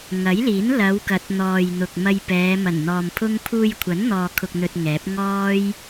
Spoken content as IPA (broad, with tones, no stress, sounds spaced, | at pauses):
ŋ ɐ˨˥ j l iː˨˥ n l ɐ˨˧ w k ɐ˨˥ t̚ n̪ ɔː˨ j n̪ ʊ˨ k̚ m ɐ˧ j p ɛː˨˧ m ɐ˨˩ n n̪ ɔː˨ m pʰ ʊ˥ ŋ pʰ uː˧ j kʷʰ ɐ˨˥ n n̪ ɔː˨ kʰ ʊ˨ k̚ n̪ ɵ˧ t̚ ŋ ɛː˨˥ p̚ ŋ ɔː˥ j